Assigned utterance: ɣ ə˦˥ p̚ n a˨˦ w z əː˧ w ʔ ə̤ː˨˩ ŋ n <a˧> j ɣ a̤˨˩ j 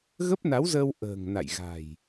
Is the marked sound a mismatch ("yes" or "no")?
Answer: yes